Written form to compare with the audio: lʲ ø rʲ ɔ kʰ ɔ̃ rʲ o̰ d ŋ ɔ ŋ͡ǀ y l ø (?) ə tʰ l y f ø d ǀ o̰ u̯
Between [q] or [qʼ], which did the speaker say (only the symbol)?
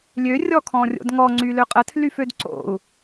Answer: qʼ